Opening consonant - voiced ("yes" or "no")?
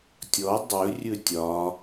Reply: no